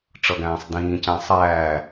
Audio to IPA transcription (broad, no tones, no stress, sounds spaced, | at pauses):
ʈ͡ʂ ʌ ɡ æ̃ː sˤ d ĩː c æ̃ sˤ æː